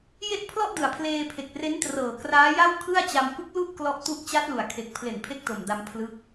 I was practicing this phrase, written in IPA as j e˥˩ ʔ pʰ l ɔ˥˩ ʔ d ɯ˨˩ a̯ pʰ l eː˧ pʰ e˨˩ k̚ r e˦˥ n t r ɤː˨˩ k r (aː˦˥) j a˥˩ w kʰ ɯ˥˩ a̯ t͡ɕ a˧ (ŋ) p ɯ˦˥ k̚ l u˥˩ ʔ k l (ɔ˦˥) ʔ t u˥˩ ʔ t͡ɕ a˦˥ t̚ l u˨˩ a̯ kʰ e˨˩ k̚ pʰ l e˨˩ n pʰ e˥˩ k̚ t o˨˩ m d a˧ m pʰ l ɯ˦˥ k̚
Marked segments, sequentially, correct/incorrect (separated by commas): correct, incorrect, correct